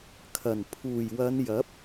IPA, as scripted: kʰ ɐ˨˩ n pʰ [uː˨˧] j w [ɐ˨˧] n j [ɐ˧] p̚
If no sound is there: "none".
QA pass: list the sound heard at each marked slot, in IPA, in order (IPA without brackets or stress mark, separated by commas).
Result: uː˨˩, ɐ˨˧, ɐ˨˥